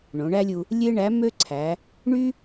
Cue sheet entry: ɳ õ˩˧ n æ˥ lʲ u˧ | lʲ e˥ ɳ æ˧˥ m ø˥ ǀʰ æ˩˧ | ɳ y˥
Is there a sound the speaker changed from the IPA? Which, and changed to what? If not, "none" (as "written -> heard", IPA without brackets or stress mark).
n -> ɳ